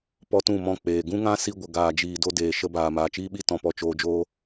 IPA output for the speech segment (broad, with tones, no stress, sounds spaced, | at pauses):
p ɔ˦ t ũ˦˨ m ɔ̃˦˨ k͡p eː˨ ɡ ũ˦ ŋ ã˦ s i˧ ɡʷ ə˨ ɡ aː˨ d͡ʒ iː˨ d o˧ d eː˨ ʃ ə˧ b aː˨ m aː˨ t͡ʃ iː˦ ɓ i˦ t ɔ̃˨ p ɔ˧ t͡ʃ oː˧ d͡ʒ oː˦